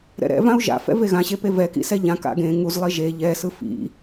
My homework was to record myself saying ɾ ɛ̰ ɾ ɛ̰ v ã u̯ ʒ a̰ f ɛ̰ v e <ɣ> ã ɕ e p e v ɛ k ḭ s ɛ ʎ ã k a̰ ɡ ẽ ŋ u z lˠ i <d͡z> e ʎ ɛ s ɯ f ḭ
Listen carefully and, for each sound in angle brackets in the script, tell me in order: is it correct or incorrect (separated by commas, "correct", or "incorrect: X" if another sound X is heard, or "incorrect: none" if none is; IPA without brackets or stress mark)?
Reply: correct, incorrect: ʒ